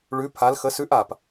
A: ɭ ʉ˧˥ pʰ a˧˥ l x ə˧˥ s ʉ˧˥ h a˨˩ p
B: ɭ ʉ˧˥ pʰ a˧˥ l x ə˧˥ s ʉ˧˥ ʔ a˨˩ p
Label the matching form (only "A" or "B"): B